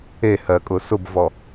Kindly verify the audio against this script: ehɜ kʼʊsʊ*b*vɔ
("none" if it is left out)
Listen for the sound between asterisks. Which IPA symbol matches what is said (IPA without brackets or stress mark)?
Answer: b